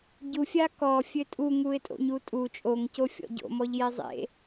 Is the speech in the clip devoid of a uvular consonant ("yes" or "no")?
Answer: yes